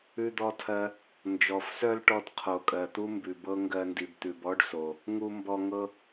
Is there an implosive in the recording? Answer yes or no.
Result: no